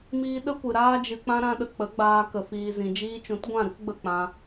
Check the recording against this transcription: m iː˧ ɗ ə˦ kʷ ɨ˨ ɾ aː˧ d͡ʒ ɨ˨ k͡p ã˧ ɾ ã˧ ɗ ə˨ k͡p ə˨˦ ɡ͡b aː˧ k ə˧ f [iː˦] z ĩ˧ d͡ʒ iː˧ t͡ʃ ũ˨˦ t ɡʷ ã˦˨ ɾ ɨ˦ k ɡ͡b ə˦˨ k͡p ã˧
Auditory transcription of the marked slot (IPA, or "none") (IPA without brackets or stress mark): iː˧